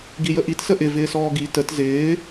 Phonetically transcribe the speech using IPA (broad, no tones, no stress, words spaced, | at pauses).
ɡijəʔit səʔɪ vɪːsɔːɡi tət zɪː